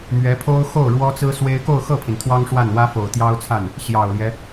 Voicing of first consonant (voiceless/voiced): voiced